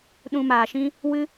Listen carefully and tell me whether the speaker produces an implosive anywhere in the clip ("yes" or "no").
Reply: yes